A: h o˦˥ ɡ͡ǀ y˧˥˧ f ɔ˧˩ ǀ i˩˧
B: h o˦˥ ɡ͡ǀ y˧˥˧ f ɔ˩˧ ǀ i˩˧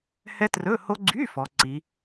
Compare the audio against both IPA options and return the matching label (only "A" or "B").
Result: B